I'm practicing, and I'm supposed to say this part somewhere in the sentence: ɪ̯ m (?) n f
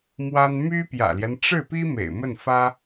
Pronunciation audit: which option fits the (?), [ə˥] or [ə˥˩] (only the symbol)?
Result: ə˥˩